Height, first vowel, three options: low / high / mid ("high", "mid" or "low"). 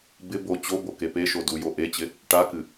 high